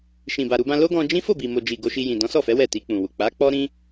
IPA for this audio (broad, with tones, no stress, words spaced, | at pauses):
ʃĩ˨ba˨ɾu˧bã˧ lo˦ɡɔ̃˧ d͡ʒĩ˦ fo˦˨bi˨mo˨d͡ʒi˨ ɡo˧ʃi˧jĩ˨ dɔ̃˨˦sɔ˦˨fɛ˨˦ wɛ˦˨ti˧k͡pũ˨wu˨ k͡pa˨˦k͡pɔ˦ ɾĩ˦